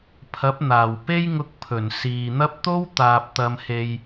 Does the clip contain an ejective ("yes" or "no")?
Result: no